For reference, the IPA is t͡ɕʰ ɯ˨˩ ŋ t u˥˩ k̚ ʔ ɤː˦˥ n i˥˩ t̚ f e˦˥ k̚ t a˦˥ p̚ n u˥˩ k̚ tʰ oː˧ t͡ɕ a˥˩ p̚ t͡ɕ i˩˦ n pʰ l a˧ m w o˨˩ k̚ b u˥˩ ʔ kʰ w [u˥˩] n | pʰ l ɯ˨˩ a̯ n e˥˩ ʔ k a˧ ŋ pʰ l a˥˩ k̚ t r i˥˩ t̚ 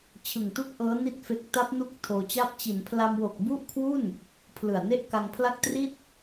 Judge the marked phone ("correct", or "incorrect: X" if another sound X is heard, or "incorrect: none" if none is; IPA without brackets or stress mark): correct